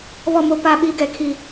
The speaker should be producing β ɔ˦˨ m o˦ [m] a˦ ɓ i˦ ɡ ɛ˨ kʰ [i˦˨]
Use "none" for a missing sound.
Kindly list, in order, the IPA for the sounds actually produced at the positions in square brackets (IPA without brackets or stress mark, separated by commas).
p, i˦˨